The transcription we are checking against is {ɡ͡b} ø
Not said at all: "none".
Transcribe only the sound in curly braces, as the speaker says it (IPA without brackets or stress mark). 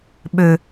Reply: ɓ